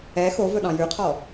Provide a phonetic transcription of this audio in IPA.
ɛ xovɵɗɑ̃ jʉqʰɔ

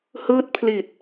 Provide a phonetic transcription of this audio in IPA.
hɯː˦˥t̚pʰli˨˩t̚

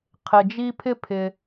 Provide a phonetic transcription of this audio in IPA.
qʰɪ˩d͡ʒi˦pʰɪ˥pʰɪ˨

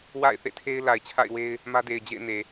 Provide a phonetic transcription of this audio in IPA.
wa̰˦˨ɪ̯θḛ˦˨tʰe˦ɪ̯ la˨ɪ̯t͡ɕʰa̰˦˨ɪ̯we˦ɪ̯ | mä˦de˨ɪ̯ d͡ʑḛ˦˨ɪ̯ne˨

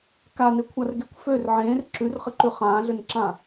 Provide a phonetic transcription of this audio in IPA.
kanekʷʰarɡekʷ før ʕẽːr ǁʉrχɘǃʉ χãːɮønǁã

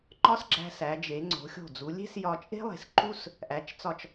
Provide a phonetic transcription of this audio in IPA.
ŋ͡ǃɒ˥sɡ͡ǁæ̤˧sæ˩˧d͡ʒe˩˧ ŋ͡ǀo̤˩˧xʲo̤˧˩d͡zu˩˧ lʲe̤˥sjɒ˧ t͡ʃʼe̤˥lˠe̤˩˧s ǃu˥s | ʔæ˩˧t͡ʃt͡sɒ˧˩t͡ʃ

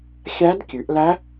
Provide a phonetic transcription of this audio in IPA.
xʲæ˦˥dkʲʉ˨˦ʔ læ˦˥

